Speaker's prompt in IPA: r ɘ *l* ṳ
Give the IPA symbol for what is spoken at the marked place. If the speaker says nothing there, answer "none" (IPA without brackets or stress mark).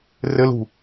l